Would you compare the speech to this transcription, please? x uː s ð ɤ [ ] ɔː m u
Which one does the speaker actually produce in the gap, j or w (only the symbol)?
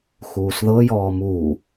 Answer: j